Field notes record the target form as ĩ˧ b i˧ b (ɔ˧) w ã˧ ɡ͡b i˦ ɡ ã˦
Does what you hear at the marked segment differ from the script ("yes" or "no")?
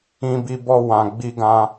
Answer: no